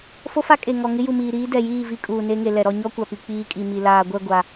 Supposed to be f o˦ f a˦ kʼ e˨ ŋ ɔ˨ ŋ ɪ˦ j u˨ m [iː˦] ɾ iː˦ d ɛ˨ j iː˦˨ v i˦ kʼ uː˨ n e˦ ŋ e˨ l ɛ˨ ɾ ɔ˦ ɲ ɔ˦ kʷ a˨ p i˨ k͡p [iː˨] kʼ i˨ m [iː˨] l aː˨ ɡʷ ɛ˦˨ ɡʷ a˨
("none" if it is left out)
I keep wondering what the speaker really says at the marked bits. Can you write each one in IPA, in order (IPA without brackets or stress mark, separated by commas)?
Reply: iː˨, iː˦, i˨